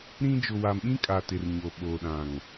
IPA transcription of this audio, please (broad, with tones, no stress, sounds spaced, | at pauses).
ɾ ĩ˦ d͡ʒ ʊ˨ w a˨ m ɓ ĩ˦ kʼ a˨ t ɪ˨ r ɲ o˨ ɓ o˨ ɗ ã˨ ŋ